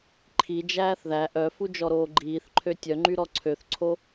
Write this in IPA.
ǃʰ i d͡ʒ æː θ ð æ ʔ œ f u d͡ʒ ɔ ɾ oː ɡ͡ǃ iː θ ǃʰ ø tʲ œ ŋ͡ǃ y ɾ ɔ ǀʰ ø θ ǀʰ o

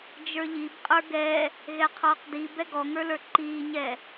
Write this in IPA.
d͡ʒ ə˞ ʎ i b qʼ ə˞ ɡ ɛ | ɣ ɛ qʰ ɔː q d i b ɛ ɡ ɔ ŋ ə˞ l ə˞ ǃ iː ɲ ɛ

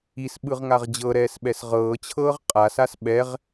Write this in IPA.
i s ɓ ɯ ʁ ŋ a ʁ d͡ʑ ɤ ɾ ɛː s ɓ ɛ s ʁ ɤː t͡ɕʰ ɤː ʁ qʼ a s a s ɓ ɛ ʁ

